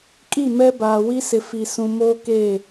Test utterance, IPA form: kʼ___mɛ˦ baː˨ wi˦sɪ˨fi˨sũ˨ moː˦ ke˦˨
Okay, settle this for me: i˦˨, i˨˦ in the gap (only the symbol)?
i˦˨